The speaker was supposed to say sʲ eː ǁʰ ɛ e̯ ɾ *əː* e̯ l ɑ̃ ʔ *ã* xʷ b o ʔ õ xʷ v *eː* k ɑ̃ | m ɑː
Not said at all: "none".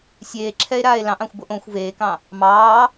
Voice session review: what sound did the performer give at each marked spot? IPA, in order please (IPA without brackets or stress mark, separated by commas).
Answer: aː, ɑ̃, eː